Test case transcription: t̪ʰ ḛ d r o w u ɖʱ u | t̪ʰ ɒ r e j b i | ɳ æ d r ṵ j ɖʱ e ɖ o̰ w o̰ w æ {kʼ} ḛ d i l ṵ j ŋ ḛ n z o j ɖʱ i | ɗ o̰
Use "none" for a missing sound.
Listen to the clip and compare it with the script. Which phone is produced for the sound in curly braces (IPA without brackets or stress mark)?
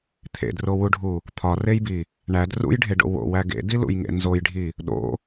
ɡ